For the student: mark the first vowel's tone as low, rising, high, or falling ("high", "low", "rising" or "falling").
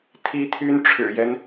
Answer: high